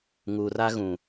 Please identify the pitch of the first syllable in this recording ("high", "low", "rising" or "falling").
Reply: low